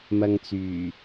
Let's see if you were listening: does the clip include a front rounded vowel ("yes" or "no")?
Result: yes